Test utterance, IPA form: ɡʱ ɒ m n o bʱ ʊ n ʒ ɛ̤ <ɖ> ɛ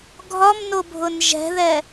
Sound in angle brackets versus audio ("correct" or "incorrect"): incorrect